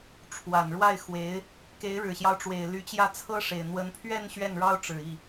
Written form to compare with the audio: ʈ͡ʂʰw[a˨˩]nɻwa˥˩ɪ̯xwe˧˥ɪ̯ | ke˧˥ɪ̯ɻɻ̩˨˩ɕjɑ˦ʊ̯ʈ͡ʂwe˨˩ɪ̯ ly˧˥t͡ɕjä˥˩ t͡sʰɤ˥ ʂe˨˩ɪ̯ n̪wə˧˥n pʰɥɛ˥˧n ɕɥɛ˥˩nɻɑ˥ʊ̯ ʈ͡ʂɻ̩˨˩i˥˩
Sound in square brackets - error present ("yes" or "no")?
no